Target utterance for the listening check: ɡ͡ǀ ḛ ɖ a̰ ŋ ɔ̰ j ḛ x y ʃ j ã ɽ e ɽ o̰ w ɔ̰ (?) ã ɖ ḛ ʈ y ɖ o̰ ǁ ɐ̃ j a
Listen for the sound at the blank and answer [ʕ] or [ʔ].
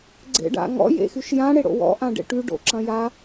ʔ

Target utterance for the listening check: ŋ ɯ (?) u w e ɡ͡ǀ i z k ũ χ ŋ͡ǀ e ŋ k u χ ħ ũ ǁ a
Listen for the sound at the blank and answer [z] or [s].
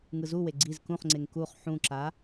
z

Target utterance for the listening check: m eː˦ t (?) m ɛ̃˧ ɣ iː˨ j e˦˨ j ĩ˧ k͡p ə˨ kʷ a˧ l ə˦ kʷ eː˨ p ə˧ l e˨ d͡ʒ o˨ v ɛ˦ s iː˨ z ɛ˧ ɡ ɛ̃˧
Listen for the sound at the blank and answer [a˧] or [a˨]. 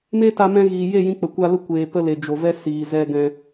a˧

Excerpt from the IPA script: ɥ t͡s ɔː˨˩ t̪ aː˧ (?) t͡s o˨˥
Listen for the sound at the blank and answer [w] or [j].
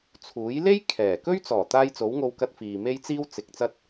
j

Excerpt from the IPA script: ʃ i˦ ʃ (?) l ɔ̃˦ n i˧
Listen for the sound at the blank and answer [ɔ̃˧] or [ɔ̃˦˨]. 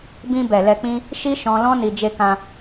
ɔ̃˧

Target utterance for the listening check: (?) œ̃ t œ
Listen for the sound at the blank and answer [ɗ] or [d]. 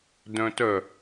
d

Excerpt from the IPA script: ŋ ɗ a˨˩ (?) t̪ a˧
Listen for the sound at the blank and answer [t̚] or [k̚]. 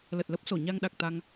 k̚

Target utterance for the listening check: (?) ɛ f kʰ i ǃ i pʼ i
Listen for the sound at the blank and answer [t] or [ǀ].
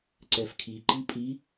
ǀ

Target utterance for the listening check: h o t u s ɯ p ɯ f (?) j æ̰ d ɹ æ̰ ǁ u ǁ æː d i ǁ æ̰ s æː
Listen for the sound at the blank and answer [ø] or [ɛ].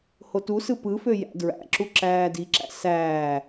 ø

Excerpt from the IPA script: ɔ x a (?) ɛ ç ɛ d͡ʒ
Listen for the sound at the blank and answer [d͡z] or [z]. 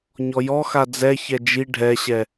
d͡z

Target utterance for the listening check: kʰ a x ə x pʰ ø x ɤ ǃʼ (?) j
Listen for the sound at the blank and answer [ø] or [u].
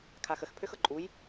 u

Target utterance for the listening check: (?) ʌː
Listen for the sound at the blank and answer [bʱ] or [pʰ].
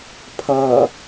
pʰ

